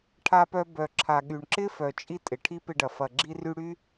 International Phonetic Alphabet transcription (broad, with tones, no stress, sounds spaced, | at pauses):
ʈʰ a˧ p œ˧ b œ˨ ǁʰ a˨ ɠ y˨ ɳ ǁ ɪ˦ f œ˨ t͡ʃʼ i˧ tʼ ɪ˨ ʈʰ i˦ p ɪ˧ ɖ ɐ˨ f ɐ˨ ɡ͡ǁ i˧ r y˧ ɽ y˦